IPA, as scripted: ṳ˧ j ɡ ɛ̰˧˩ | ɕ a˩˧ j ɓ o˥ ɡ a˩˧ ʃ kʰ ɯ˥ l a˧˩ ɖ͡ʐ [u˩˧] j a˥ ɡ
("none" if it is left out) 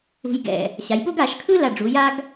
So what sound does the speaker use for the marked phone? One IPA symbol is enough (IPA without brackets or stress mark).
u˩˧